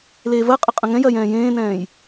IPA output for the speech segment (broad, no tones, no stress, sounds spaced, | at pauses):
l eː v ɜ qʼ ə qʼ ə̃ ŋ ɛ̃ j ɜ j ɛ̃ː j ẽː n ɛ̃ː j